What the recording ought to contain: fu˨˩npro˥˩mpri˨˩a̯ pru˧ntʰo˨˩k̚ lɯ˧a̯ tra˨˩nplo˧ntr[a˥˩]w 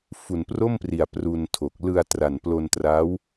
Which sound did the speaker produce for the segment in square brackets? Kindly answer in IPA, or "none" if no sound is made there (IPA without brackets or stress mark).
a˦˥